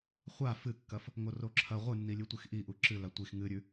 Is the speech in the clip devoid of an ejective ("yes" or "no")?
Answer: yes